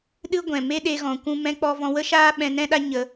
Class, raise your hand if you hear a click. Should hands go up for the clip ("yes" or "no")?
no